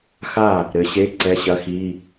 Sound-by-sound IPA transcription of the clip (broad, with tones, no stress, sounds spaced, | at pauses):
x a˥˩ | ɾ ɘ˨˦ ɕ e˧˥˧ ǀ ɛ˧˥˧ ɕ ɐ˧˥˧ x i˧˥˧